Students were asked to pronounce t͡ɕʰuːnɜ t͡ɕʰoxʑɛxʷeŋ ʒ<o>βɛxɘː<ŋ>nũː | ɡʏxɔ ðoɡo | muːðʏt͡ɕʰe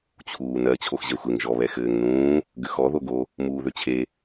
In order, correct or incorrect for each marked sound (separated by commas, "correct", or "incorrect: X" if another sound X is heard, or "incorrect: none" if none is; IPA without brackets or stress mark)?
incorrect: ɔ, correct